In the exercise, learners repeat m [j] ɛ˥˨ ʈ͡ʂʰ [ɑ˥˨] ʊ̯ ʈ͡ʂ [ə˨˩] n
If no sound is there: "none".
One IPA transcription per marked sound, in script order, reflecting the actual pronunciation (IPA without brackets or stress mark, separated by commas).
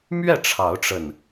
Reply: ɥ, ɑ˨˦, ə˨˩